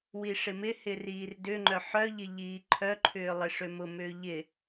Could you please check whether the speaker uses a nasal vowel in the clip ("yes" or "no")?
no